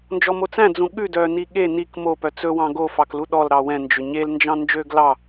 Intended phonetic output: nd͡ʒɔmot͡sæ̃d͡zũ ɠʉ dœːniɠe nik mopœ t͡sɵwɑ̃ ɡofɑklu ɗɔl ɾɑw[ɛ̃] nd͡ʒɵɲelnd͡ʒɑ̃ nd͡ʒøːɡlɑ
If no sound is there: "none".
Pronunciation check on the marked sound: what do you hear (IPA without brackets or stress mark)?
ɛ̃